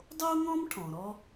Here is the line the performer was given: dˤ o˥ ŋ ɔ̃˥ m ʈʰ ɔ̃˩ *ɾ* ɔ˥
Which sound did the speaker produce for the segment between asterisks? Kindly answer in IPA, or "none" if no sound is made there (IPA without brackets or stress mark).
ɾ